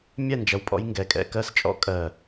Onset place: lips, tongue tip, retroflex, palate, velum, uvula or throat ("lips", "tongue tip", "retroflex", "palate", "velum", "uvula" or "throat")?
lips